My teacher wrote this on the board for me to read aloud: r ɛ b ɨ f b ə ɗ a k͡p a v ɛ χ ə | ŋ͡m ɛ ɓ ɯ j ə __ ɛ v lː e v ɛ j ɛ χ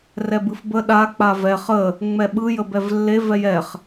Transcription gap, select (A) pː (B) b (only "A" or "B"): B